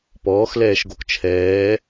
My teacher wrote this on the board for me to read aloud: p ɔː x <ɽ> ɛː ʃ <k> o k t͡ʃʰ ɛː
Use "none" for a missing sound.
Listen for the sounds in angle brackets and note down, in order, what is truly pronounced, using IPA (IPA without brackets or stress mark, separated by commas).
l, ɡ